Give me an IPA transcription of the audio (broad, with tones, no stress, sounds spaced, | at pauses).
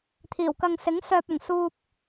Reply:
t̪ʰ iː˨˩ w k ɐ˨ ŋ s ɪ˨˥ ŋ s œː˨ p̚ ɐ˨˩ ŋ s uː˧ p̚